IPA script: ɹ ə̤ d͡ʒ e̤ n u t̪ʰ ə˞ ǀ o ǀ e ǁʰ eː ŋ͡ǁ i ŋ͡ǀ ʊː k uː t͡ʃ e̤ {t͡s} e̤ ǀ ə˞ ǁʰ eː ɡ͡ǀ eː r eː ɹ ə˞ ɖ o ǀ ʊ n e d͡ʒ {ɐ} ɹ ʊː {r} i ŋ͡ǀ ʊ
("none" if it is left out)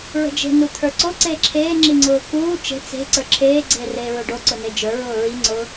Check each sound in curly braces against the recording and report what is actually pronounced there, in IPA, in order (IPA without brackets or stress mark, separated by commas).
t͡s, ə˞, ɹ